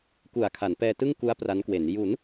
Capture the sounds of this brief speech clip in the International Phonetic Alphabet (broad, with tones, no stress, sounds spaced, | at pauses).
k u˨˩ a̯ kʰ a˩˦ n p ɛː˧ t ɯ˥˩ ŋ k u˦˥ a̯ p r a˦˥ n k w e˩˦ n j u˩˦ n